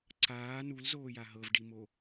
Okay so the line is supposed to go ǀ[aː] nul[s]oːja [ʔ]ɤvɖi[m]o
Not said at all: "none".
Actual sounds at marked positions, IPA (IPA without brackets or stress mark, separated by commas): aː, z, ɦ, m